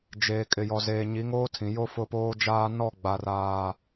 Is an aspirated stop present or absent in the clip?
present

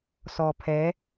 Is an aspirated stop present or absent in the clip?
present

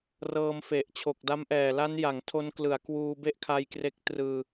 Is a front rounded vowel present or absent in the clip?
absent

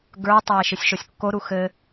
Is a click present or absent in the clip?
absent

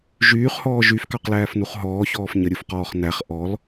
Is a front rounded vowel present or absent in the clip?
present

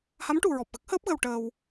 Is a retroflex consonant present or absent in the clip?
present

